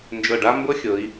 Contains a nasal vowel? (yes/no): no